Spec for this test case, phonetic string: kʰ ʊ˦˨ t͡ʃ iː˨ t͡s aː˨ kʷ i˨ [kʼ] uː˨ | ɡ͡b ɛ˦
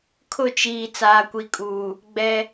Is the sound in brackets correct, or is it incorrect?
correct